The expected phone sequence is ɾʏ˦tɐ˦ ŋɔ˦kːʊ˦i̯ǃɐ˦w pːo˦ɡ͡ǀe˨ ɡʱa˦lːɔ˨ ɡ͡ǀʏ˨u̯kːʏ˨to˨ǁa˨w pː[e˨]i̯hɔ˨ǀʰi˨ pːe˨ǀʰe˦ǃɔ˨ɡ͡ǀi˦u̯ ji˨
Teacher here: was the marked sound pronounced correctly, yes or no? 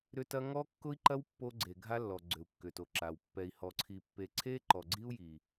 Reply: no